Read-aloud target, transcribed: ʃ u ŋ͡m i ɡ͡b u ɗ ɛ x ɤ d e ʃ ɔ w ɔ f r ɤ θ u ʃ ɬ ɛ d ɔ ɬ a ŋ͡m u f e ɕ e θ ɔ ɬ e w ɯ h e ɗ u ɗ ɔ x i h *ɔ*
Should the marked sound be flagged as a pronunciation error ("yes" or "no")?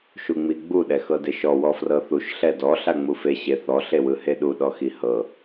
yes